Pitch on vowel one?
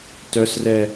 high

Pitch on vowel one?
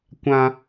high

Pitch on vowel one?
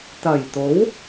low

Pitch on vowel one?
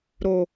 low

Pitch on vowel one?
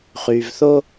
low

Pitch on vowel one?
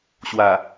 low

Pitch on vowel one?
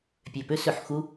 low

